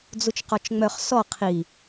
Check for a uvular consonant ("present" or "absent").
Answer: present